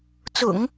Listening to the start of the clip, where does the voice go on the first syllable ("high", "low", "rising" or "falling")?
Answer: low